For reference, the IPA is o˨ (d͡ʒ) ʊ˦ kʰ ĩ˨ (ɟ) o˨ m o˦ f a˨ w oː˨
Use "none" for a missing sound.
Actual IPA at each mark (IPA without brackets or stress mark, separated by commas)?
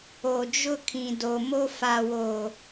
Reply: d͡ʒ, d